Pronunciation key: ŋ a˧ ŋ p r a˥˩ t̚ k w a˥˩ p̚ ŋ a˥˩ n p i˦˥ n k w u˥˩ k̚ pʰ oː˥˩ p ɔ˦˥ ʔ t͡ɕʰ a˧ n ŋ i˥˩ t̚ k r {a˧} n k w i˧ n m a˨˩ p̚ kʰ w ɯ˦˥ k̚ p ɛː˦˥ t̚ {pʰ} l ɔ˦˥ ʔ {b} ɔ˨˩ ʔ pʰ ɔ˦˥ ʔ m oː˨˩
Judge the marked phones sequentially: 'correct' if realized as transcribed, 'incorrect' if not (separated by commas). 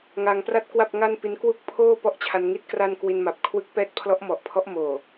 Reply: incorrect, correct, incorrect